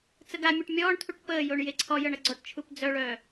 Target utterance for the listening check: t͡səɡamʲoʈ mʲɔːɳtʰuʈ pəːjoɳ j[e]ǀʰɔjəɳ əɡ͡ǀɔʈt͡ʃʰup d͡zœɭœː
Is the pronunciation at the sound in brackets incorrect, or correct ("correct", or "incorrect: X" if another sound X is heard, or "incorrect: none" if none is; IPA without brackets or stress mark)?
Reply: correct